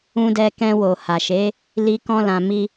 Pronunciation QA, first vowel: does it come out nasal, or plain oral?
nasal